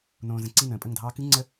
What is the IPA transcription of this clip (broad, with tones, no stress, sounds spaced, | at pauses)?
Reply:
n õː˨ z ə̃˨ ǀ i˦˨ n ə̃ː˨ pʼ ə˦˨ ŋ dʱ ɑː˦ k ɨ˦ ŋ͡ǀ ə˦